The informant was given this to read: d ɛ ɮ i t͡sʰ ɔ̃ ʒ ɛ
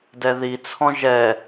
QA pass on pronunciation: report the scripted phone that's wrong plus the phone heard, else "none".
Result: ɮ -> ð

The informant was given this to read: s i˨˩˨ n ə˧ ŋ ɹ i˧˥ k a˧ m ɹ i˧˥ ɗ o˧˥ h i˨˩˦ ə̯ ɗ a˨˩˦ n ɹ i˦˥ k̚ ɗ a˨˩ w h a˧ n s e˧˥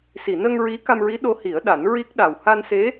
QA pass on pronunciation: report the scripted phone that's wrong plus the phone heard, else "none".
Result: none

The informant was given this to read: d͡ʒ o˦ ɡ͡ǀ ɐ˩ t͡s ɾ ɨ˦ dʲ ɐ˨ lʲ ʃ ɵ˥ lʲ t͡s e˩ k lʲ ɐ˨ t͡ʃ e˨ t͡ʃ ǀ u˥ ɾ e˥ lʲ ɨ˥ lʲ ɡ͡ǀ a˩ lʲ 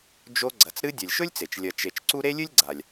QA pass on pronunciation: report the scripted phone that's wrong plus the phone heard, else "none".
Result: k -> t͡ʃ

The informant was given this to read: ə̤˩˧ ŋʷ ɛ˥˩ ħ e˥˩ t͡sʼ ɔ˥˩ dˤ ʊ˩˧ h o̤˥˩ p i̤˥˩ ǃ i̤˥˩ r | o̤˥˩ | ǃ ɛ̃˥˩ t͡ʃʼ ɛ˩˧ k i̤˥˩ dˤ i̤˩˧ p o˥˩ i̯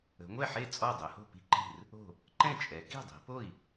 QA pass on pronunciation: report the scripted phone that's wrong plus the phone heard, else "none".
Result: none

